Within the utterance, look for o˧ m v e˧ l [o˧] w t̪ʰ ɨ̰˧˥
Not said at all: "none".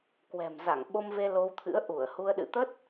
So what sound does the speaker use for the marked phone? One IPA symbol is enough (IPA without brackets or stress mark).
o˧